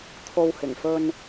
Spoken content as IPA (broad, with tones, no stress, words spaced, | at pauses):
t̪ʰo˧w hɪ˨˩ŋfɵ˧n